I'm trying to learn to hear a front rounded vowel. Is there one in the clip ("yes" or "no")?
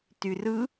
yes